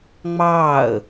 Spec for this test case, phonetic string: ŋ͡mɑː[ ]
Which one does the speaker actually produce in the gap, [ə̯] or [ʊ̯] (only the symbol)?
ə̯